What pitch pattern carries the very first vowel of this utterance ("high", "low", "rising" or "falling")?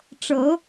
rising